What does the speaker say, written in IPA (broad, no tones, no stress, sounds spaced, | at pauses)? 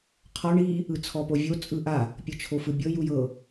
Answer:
qʰ ɔ ɳ i | ɯ t͡sʰ ɔ p o vʲ o t͡sʼ ɯ ʔ a | pʲ ɤ t͡ʃʰ o f ɯ bʲ ɤ j u j ɤ